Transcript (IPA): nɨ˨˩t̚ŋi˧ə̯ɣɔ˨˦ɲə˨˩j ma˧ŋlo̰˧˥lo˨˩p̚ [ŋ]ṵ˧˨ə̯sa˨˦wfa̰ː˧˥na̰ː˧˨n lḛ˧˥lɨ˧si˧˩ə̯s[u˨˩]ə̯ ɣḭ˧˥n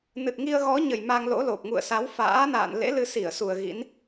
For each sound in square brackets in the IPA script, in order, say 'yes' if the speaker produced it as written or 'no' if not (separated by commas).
yes, yes